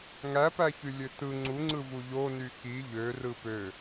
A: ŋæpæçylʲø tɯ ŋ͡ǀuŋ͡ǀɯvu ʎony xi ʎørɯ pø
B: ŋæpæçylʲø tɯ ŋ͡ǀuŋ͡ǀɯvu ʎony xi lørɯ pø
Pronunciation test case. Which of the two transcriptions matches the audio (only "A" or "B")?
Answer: A